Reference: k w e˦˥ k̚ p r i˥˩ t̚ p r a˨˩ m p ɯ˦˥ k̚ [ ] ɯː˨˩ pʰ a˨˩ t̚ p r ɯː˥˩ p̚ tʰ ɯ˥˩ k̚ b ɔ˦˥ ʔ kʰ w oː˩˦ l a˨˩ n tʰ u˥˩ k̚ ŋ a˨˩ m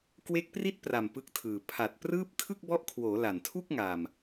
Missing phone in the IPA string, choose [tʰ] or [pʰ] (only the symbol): tʰ